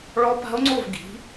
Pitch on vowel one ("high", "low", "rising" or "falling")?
rising